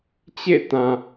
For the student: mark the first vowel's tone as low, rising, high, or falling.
falling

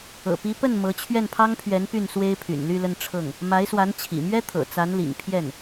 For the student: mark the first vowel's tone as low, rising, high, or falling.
low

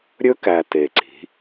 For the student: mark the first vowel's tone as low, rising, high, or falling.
high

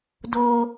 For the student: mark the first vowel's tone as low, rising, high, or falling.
high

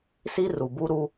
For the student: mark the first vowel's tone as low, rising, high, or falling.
high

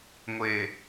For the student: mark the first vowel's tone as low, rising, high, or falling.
low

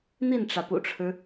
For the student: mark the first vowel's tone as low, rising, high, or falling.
falling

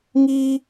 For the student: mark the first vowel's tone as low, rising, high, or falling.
high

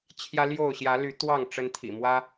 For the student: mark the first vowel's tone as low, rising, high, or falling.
high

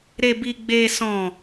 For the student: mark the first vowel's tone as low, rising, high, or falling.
low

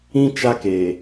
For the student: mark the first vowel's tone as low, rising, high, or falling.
high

